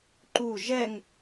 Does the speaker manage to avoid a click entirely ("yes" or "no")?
no